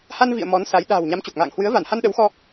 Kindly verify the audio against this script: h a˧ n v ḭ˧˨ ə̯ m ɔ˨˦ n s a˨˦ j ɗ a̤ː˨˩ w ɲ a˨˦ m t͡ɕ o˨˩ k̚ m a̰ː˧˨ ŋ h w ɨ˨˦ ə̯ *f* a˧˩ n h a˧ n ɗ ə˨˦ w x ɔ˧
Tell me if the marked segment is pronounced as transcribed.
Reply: no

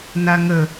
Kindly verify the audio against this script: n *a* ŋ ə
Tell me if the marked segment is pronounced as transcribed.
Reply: yes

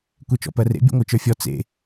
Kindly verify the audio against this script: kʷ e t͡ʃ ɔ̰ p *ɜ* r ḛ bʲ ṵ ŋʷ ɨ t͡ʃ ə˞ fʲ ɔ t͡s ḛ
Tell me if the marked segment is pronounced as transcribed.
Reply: yes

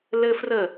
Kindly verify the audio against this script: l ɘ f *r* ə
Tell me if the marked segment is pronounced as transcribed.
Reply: yes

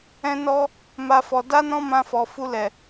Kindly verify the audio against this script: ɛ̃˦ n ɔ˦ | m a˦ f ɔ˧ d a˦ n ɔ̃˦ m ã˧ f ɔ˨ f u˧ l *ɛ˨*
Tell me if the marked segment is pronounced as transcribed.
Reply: yes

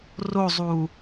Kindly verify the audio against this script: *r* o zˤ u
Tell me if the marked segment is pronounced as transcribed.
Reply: yes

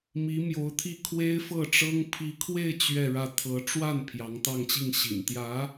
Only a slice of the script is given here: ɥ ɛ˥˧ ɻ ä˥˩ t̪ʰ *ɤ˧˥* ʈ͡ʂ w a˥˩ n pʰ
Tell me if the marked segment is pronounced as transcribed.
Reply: yes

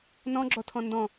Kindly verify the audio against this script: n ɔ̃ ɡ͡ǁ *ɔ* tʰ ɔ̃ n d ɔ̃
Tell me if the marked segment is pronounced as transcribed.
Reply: yes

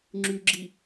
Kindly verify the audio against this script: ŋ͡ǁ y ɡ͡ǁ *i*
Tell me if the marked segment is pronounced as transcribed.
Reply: yes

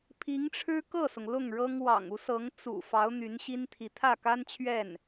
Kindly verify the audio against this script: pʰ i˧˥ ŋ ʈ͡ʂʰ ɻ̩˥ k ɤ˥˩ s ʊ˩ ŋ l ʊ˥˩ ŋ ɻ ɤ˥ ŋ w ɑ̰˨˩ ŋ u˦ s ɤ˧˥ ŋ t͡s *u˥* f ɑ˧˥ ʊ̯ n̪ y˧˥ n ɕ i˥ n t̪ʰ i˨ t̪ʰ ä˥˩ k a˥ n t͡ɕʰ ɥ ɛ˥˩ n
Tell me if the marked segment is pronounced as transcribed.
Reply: no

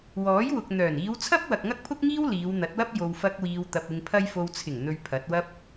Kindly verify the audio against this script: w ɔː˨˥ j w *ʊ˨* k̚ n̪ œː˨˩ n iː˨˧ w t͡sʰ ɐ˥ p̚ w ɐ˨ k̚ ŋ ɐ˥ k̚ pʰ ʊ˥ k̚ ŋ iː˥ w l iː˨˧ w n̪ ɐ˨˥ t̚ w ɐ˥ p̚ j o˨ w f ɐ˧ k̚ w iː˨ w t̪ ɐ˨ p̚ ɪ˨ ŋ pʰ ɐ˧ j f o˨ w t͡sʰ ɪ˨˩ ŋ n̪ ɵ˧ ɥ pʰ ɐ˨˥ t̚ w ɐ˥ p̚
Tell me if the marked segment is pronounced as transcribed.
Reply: yes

